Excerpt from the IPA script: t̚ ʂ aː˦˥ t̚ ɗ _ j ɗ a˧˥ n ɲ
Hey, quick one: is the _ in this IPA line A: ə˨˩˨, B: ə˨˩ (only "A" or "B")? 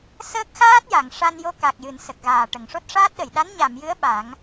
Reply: A